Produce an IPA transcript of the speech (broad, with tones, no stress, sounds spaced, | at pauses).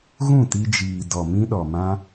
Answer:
ɣ ũ˦˨ t i˧ d͡ʒ iː˨ d ɔ˨ m ĩ˦ ɗ ɔ˨ m ã˦